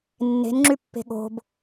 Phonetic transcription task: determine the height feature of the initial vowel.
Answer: mid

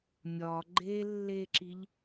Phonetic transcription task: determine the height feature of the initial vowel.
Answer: low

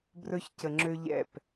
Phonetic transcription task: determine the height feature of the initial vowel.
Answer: mid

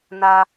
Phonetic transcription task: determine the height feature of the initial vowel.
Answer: low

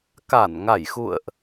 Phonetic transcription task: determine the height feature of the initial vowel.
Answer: low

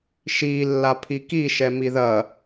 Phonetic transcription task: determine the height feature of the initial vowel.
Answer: high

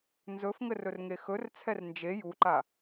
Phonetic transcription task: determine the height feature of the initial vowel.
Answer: mid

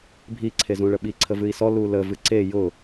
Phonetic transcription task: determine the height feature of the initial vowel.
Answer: high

